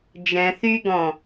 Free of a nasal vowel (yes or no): no